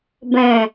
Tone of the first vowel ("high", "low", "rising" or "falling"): low